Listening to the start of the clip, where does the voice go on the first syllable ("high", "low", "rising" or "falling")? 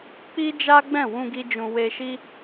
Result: high